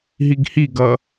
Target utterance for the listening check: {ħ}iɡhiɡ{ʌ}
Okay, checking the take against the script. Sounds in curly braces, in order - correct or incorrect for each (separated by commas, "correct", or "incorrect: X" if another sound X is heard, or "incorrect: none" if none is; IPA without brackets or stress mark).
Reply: incorrect: ɦ, correct